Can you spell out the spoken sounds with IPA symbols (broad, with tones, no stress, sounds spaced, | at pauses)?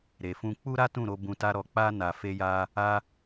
ɾ e˨ f ũ˧ k͡p u˦ ɾ a˦ t ũ˦˨ ɾ o˧ b ũ˧ t a˦ ɾ ɔ˧ k͡p a˦ n a˧ f e˧ j a˧ | a˧